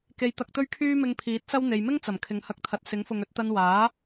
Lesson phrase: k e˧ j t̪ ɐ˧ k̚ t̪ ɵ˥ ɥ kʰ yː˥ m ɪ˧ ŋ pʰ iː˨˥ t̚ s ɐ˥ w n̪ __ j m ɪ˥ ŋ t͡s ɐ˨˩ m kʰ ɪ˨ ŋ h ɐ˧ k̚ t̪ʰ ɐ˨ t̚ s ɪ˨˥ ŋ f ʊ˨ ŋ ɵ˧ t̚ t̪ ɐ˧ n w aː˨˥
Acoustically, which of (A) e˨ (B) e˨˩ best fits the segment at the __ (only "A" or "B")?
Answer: A